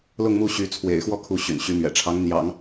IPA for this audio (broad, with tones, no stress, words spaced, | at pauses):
lʊ˥˧ŋmu˥˩ ɕy˧˥ t͡sʰwḛ˨˩ɪ̯xwɔ˥˧ kʰu˥˩ ɕy̰˨˩nɕy˧˥mɥɛ̰˨˩ʈ͡ʂʰɑ˧˥ŋ n̪jɑ̰˨˩˦ŋ